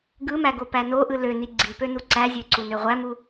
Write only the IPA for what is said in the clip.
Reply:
ɡɯmæɡopæ noʔɯ løni ɡ͡ǀipønu ǀæzʲøǀunø ʁʷæmu

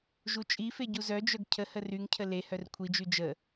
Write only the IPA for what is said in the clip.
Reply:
ʒut͡ʃʼife ɟuzœd͡ʒœɡ cʰəhə ryŋcʰə le hœrkʷʰid͡ʒy d͡ʒə

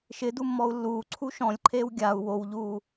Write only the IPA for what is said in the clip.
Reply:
ʃɪdu mːɔu̯lːuːǀʰu ʃɔ̃lʲǃʰeːw ɡʲau̯ wowʎuː

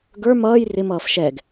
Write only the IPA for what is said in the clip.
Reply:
ɡə˞ mʌːj rɪmʌːf ʃɛɡ

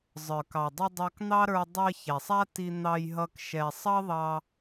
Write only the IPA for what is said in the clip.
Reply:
zˤə˞˨kɑ˨dˤʌ˧ dˤɑ˧kn̪ɑ˦ɾə˞˧ dˤɜ˧çɛ˨sˤ a˦ti˧ n̪ɑ˧jɦʌ˧k ʃɛ˨sˤʌ˦ðˤɑ˧

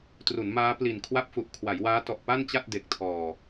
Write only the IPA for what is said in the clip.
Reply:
tru˩˦nmaː˦˥ pli˨˩nkʰwa˥˩p̚fu˨˩ʔ kʰwa˩˦jwaː˦˥tɔ˨˩ʔ pa˥˩nt͡ɕa˥˩t̚ de˨˩k̚tʰɔː˨˩

